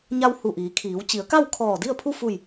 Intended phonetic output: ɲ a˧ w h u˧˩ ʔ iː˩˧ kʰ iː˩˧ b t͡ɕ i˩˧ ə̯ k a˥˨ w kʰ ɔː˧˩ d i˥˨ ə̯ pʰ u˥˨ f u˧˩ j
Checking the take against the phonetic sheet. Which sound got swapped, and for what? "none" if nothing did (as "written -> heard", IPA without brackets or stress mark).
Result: b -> w